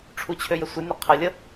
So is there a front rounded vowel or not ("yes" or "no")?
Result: yes